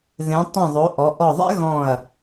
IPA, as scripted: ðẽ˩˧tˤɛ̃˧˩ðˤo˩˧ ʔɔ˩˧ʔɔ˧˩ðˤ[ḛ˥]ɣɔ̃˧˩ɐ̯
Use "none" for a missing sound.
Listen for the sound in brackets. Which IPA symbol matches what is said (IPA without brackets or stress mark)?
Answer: ḛ˥